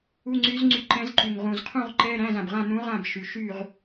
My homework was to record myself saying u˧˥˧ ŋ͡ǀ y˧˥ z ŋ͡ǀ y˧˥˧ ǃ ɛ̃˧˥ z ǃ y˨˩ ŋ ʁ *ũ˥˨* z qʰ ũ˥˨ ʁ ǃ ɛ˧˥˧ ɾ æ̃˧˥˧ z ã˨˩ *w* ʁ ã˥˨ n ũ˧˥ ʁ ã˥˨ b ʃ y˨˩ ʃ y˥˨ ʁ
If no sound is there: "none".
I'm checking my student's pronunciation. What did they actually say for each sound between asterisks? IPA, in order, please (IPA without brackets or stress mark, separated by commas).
ũ˨˩, b